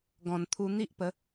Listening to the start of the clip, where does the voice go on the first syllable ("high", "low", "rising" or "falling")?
low